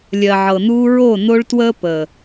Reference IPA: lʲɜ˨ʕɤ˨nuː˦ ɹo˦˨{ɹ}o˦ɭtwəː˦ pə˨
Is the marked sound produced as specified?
no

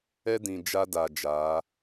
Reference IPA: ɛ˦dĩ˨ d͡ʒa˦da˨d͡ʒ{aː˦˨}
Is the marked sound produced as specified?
no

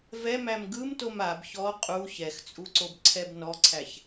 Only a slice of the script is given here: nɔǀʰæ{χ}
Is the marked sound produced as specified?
no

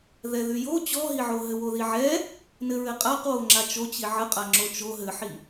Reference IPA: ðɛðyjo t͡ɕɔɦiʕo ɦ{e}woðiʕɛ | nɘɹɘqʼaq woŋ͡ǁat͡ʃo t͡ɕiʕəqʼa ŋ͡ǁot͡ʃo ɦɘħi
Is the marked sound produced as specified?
no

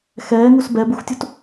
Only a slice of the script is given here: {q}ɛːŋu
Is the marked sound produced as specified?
no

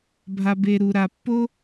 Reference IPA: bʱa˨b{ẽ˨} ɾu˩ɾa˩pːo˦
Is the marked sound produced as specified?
no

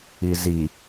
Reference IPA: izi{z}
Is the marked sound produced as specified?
no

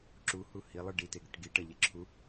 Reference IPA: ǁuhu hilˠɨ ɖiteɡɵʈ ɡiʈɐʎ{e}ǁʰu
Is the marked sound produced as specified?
yes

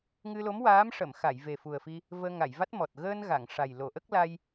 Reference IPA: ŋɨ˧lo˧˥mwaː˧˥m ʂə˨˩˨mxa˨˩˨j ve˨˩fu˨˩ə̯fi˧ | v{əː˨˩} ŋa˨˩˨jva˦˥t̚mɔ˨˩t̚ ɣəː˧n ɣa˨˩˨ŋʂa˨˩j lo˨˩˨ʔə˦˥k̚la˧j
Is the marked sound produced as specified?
no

